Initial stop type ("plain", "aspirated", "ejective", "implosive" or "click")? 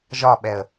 implosive